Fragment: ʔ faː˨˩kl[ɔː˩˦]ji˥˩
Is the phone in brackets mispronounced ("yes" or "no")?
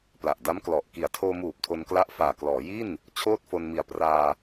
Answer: no